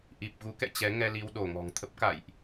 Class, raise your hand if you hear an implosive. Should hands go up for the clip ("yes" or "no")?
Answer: yes